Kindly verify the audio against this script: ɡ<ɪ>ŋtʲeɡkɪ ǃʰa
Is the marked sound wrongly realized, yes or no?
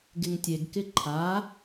no